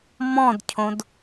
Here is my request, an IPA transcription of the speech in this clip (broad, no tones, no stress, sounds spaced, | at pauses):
m ɔ̃ d cʰ õ d